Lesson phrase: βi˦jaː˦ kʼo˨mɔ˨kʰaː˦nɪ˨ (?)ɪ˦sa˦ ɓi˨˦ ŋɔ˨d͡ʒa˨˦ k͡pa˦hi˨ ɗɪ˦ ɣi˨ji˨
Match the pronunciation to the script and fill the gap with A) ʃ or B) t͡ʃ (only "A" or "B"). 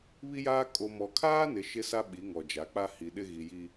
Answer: A